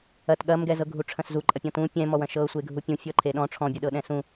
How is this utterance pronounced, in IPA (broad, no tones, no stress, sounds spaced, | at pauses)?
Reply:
ɐ t ɠ ɐ m ɡ ɛ z ɤ ɡʱ u ʈ͡ʂʰ ɐ̃ s z u ǃʼ ɐ pʲ ɔ̃ t ũ pʲ ɛ̃ m ɔ w ɐ̃ ʃ ɤ sʷ e ɡʱ u pʲ ũ fʲ ɔ ǃʰ e ɗ ɔ̃ ʈ͡ʂʰ ɔ̃ bʲ ɤ ɗ ɤ ɗ ɛ̃ s ũ